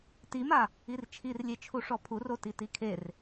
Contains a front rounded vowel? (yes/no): no